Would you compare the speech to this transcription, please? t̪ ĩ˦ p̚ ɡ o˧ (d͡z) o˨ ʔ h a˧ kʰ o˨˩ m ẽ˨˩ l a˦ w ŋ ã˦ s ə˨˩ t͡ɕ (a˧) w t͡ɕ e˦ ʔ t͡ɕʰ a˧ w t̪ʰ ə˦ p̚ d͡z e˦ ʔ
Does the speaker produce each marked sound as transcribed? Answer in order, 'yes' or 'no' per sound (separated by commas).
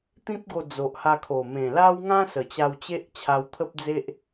yes, yes